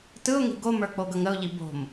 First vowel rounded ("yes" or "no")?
no